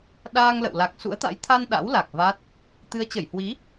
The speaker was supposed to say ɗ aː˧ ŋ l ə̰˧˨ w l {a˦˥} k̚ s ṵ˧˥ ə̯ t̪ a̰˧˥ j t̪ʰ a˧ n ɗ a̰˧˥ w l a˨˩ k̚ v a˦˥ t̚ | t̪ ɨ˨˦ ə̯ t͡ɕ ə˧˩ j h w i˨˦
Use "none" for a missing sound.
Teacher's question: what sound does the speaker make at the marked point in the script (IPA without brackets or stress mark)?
a˨˩